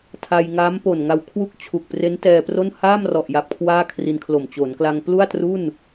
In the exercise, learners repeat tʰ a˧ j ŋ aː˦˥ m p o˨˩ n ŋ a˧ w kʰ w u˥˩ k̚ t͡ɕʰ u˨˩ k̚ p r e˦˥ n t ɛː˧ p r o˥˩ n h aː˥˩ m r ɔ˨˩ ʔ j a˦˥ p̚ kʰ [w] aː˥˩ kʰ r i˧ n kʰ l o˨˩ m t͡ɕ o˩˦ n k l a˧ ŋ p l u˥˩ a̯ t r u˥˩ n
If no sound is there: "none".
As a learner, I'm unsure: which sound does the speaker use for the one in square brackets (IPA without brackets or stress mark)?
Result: w